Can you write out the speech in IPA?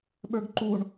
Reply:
ɓə˞ɡǃuɳ

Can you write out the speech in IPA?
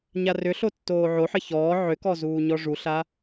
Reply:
ɲarʏɬo tːoːʕoħɘ çɔː ʕʏkɔ zuːɲɔʐuɬa

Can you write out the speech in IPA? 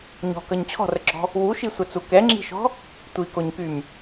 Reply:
ɲɔ̤kʌɲ t͡ɕʰɔ̤rəɡ͡ǁɔ̤ | wuʃisʷɛt͡su kɛŋ͡ǁi̤ʃɔ̤ | tʷikoɲkym

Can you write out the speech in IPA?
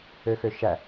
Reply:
øxøʃæ

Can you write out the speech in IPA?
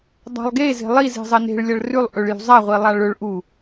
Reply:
dˤa̤lˠɡe ze̤lˠiz e̤zˤɐne̤ɭ lʲɐɭrʉlˠ ʔɵɭjṳzˤa ʁʷilˠaɭɵɭ ʔu

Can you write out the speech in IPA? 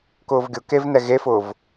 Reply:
kʊːvɡʲʊkevnɛ ɣefʊːv

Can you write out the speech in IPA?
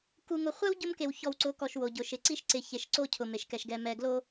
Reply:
ku˨ŋʊ˨χʷɛ˦w ɟʊ˦mke˨wçɔ˨wǀʊ˨˦ kɔ˨ʃwo˨ɟʊ˨ʃɪ˨ ǀi˦ʃǀɪ˨ çe˨ʃǀo˦˨ cʰʊ˨me˨ʃkɛ˨ʃ ɡɛ˨mɛ˨ɡlo˦

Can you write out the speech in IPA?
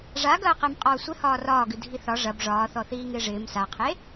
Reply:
ʐaɡɐːqem qʼɒːsʷɪ hɒːrɒːɡɨ dʱiθɒ ʐɐb ʐɒːθɔ θiːŋɪːʐɪːm saqʰe

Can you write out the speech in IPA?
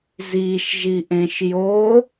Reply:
ziːʃ ʒiːʔẽʃ joː

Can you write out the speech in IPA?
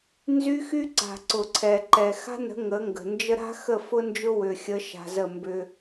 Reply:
nzy˦xy˦ǀa̤˨ ǀʊ˨ǀʰɛ˨ǃɛ˨ xa̤˦nə̤˨˦ ŋə˨˦ŋɡə̤˨nd͡ʒə˦ ɾa̤˦xə˦˨ fʊ˦ nd͡ʒʊ˦wʏ˨xʲə˨˦ʃa̤˨ zə˦˨mbʏ˦

